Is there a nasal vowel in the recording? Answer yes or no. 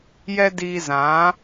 yes